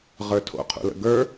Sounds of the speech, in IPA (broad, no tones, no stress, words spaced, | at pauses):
ʁə˞tʰo̰ qʰṵlə̰ɡə˞